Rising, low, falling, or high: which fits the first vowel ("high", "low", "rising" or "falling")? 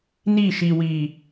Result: falling